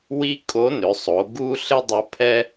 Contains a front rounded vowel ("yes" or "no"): yes